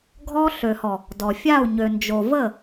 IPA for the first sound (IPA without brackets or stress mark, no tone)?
ɡʱ